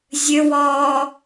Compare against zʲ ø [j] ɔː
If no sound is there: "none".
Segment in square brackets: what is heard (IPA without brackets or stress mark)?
w